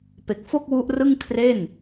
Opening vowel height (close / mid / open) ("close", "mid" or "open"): mid